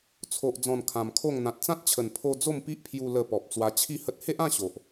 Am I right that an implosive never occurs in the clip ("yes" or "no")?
yes